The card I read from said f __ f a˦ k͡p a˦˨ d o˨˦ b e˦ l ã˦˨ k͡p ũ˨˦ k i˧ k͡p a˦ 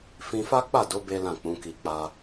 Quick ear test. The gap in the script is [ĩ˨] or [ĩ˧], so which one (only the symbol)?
ĩ˧